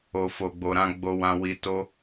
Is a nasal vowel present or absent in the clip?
present